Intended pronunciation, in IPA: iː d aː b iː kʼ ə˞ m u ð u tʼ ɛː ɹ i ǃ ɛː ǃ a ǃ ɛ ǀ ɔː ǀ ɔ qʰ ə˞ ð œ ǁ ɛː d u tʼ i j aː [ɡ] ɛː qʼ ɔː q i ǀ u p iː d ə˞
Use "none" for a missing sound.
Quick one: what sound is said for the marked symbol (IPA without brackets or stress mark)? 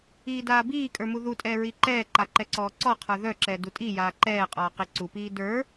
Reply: ǃ